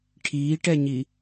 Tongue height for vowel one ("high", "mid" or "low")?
high